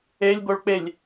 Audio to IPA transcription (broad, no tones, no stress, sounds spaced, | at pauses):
e lʲ b o ɭ k͡p e lʲ